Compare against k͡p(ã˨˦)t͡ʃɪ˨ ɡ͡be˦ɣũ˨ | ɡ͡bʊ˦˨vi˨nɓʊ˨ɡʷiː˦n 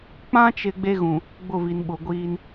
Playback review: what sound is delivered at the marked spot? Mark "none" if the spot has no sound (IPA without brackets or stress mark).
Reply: ã˦